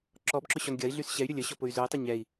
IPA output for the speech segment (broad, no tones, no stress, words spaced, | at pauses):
ǁɔbǁʊ ɕɔnɡʲɐi̯ɮys ɕɛy̯ɾʲʊ lʲə ɕɔpʊy̯zʊi̯tˤə ɲɛi̯